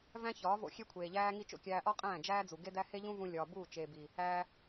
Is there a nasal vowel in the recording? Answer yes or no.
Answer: yes